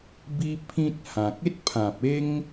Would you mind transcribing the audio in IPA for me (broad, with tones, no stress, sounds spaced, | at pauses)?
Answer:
b i˦ pʰ ĩ˦ t̚ h ã˨ k̚ e˦ t̚ pʰ ã˨ p̚ e˦ ŋ